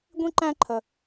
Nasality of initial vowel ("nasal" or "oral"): nasal